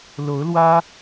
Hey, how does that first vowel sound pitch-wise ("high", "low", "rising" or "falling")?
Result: rising